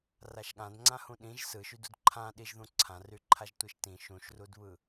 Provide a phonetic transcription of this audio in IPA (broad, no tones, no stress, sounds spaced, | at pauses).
r a ʃ ɠ ã d ŋ͡ǀ ã h ũ ɗ ĩ ʒ s ɯ ʃ y d u d ǃʰ ã ɗ i ʒ ð ũ ǀʰ ã r y ǃʰ a ʒ tʷ i ʃ t ĩ ʃ ũ ʃ r u d β ɯ